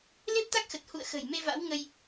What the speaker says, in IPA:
l e˦˥ p̚ t̪ a˦˥ k̚ x ə˨˩ t̚ h ṵ˧˨ ə̯ x ə̤˨˩ j m e˧ v a̰˧˥ w ŋ ə˧ j

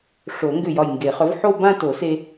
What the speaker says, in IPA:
ʂ o˨˩˦ ŋ ɡ ʏ˧˩ j ɒ˧˩ j ŋ ɡ e˨˩˦ χ œ˩˥ v ħ o˥˧ b ã˥˧ t o˨˩˦ s e˧

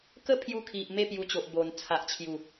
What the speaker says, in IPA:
k ə˦ pʰ j u˧ kʰ i˨ ʔ m e˥˧ p j u˧ t͡ɕ o˨ ʔ b o˨˩ n t͡sʰ a˨ ʔ t͡ɕʰ j u˨˩

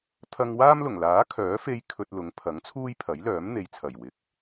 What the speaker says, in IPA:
t̪ʰ ɐ˧ ŋ w aː˥ m l ʊ˨˩ ŋ l aː˨˥ kʰ œː˨˥ f e˧ j kʰ ɵ˧ t̚ l ʊ˨˥ ŋ pʰ ɐ˨˥ ŋ t͡sʰ uː˥ j pʰ ɐ˨˥ j l œː˨˥ m n̪ e˨ j t͡sʰ ɐ˨˩ j w ɪ˨˥ k̚

